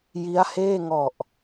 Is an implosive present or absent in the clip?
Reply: absent